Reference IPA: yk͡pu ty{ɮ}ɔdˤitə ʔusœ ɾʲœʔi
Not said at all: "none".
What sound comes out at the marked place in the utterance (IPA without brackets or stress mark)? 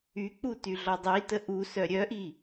ɮ